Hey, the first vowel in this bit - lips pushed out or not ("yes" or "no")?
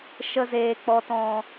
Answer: no